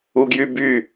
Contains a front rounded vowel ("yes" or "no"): yes